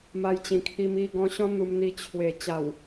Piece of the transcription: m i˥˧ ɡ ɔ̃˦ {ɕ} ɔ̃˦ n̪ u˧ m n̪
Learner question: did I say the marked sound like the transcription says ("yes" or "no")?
yes